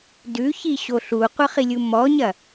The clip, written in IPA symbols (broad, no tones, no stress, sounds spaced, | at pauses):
d ʉ ç i ɕ o ɬ u qʷ ɐ χ i lʲ u m ɔ ɲ ɐ